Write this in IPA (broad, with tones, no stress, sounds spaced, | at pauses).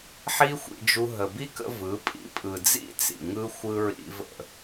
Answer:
ħ i˦ xʷ ḭ˧ d͡ʒ u˧ ɦ ə˨ b i˦ k ə̰˧ v ɯ˨˦ pʼ ḭ˧ pʼ ɯ˨ d͡z ḭ˦ t͡s ḭ˨ ŋ ɯ˦ xʷ ɯ˧ ɹ ḭ˧ v ə̰˦˨